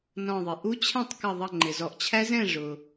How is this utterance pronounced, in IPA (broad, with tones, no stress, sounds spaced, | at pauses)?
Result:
n ɔ̃˧˩ ðˤ ɪ˩ ʔ u˦˥ t͡ɕʰ ɛ̃˥˨ tˤ k ʌ˧˩ ðˤ ʌ˧˩ ŋ͡ǃ ɪ˩ z ɔ˩˧ ʔ t͡ɕʰ æ˦˥ z ɛ̃˥˨ ʐ ʊ˩